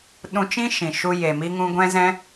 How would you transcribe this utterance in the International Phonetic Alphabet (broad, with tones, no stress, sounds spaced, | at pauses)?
ɗ ũ˧ t͡ʃ ĩ˦ ʃ ĩ˨ ʃ u˧ j e˨ m i˧ ŋ ũ˧ ɡʷ ɛ̃˧ z ɛ̃˧